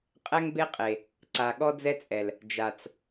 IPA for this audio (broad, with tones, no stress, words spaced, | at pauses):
qʼɛ˦ŋbe˦qʼe˨ | ǀa˨ɠɔ˦d͡zɛ˦t͡sʼɛ˨l | d͡ʒa˨t͡s